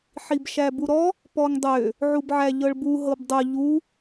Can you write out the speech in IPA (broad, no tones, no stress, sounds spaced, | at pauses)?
ħ i b ʃ æ b u ɾ ɔ | p ɔ ŋ dˤ ø | ʕ u b ʕ æ ʎ ɤ ɭ b u ɦ ɤ b dˤ ʊ ʎ u